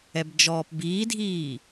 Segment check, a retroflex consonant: absent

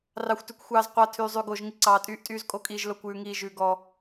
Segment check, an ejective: present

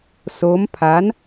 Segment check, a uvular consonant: absent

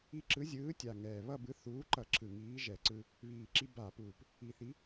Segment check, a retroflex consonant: absent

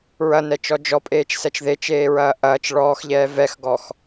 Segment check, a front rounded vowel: absent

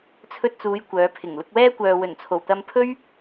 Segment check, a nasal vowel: absent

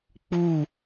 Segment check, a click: absent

